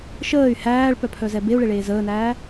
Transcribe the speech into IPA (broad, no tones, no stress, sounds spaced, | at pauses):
ʃ əː y̯ h æː ɭ p œ pʰ œ z ɛ b e u̯ ɭ e ɭ eː z əː n æː